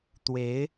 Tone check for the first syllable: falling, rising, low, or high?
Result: rising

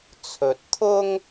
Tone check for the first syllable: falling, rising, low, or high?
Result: rising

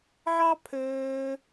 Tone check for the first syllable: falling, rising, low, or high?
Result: high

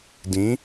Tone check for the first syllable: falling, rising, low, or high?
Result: rising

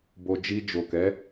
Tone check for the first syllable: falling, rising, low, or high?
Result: low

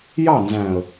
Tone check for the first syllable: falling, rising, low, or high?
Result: falling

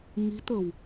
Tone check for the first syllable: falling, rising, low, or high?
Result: rising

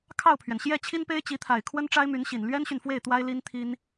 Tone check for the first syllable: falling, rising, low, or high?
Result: falling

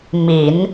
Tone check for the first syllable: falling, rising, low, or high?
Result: low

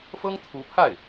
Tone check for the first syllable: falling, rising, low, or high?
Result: high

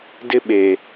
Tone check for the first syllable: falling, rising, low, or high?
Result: high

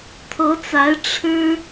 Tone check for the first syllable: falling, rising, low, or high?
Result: rising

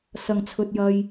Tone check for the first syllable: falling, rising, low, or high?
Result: low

